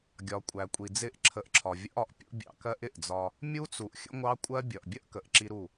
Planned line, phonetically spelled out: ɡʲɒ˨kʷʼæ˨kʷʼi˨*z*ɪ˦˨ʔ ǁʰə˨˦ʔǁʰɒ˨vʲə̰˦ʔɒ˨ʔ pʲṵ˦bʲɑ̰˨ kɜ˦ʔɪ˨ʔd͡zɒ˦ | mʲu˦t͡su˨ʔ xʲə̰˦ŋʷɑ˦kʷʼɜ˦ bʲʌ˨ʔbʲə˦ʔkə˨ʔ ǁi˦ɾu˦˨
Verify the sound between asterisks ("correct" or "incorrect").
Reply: incorrect